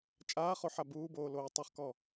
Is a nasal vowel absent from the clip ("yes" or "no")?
yes